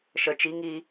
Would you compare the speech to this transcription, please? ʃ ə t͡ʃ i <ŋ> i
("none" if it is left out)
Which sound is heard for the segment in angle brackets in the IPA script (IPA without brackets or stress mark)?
ŋ